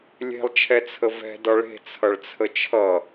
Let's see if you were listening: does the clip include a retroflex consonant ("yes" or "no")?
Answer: yes